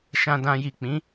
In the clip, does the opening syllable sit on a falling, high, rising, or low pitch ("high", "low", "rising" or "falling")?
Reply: low